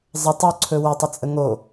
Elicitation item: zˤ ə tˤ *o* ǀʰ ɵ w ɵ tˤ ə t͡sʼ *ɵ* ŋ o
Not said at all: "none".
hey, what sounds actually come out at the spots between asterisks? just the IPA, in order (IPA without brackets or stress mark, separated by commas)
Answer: o, ə